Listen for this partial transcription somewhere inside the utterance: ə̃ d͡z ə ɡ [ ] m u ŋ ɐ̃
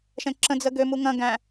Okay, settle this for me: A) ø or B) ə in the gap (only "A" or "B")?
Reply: A